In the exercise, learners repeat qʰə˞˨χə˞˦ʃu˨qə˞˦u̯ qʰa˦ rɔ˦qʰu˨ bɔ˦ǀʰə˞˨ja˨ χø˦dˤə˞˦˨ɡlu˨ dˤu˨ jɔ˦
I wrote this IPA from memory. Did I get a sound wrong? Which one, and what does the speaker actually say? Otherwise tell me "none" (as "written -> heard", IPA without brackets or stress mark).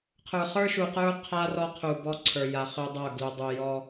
none